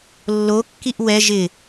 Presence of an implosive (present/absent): absent